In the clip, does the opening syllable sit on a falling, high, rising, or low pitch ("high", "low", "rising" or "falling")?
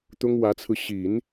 high